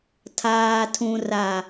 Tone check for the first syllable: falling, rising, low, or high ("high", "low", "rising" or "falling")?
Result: low